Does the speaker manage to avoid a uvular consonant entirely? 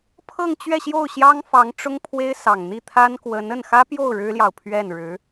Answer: yes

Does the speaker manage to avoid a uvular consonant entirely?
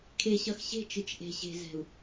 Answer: yes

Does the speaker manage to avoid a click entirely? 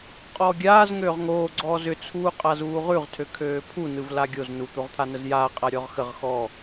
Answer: no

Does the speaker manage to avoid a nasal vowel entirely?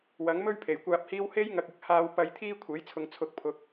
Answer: yes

